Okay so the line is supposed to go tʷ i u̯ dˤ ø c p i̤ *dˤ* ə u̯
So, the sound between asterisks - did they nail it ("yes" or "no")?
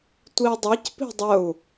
yes